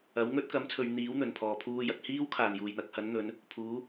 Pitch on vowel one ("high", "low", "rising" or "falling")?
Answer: rising